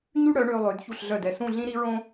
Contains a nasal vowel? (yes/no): yes